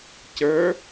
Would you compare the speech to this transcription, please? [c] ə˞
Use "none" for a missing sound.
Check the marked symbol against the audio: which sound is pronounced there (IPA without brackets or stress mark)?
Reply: c